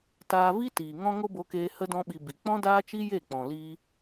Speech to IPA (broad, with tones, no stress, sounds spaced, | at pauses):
t aː˧ v i˦ t iː˨ ŋ ɔ̃˦ ŋ o˦ b o˧ k eː˧ h ə˦ d ɔ̃˦ ɓ i˧ b i˨ k͡p ɔ̃˦ d aː˦ t͡ʃ i˦ j e˦˨ k͡p ɔ̃˨ l i˧